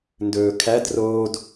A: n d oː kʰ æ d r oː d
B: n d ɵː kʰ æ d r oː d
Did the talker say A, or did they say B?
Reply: B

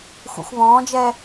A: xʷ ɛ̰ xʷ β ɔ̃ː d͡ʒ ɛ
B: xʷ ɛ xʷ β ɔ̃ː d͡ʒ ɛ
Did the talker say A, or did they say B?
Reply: A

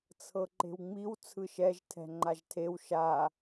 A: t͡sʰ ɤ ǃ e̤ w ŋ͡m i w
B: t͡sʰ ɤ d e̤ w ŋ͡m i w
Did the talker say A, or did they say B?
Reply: A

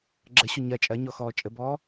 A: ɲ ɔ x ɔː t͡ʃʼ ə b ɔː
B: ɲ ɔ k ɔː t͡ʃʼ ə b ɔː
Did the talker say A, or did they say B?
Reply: A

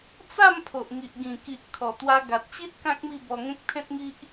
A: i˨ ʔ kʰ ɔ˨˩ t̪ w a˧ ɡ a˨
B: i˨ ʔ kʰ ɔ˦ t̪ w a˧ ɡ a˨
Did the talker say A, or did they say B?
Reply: A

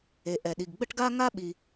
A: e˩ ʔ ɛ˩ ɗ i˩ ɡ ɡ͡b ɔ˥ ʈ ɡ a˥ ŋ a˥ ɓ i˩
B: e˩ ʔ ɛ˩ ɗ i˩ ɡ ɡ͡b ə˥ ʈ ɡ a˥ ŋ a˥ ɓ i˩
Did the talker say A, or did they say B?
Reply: B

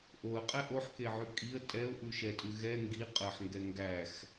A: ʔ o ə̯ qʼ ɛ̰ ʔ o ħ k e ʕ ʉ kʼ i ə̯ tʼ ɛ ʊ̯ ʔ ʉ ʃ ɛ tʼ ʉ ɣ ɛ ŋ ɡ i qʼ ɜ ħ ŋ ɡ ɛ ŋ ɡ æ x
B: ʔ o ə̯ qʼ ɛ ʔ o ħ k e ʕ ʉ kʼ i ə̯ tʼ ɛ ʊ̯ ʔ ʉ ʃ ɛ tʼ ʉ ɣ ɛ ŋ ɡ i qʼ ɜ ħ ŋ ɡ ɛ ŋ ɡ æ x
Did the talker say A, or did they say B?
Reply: B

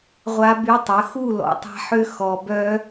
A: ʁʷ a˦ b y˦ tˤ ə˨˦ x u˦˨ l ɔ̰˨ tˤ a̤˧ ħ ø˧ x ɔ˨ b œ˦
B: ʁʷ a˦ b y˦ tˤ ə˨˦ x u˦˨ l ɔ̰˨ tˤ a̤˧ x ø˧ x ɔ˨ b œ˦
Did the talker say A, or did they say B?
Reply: A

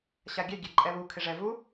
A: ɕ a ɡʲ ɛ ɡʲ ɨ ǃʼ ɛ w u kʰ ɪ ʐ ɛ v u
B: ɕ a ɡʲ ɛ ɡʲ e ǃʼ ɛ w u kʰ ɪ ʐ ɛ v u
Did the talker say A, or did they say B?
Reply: B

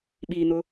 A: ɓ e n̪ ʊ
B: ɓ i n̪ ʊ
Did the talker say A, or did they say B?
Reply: B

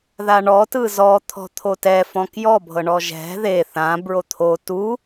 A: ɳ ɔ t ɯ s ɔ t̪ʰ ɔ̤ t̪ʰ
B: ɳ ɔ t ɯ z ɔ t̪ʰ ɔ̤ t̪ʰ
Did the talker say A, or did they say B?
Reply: B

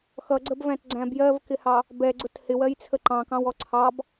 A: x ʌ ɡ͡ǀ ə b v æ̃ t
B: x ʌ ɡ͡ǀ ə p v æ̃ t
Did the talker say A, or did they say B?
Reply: A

